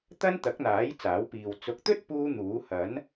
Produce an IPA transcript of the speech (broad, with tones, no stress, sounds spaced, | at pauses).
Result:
t̪ ɐ˥ n t̪ ɐ˨˥ k̚ n̪ aː˨˥ j t͡s aː˨˥ w p iː˨ w t͡s ʊ˨˥ k̚ t̪ ɵ˥ t̚ p uː˥ n̪ uː˨˥ h ɐ˨˥ n